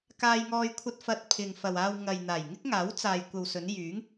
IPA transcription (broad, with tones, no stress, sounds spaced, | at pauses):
k aː˧ j ŋ ɔː˧ j kʷʰ ɐ˧ t̚ f ɐ˨ t̚ pʰ ɪ˨ ŋ f ɐ˨ w aː˧ w ŋ ɐ˨ j n̪ aː˨˩ j ŋ ɪ˥ k̚ ŋ aː˨˥ w t͡s aː˨ j kʷ ɐ˨ w s ɵ˨˧ n j yː˨˥ ŋ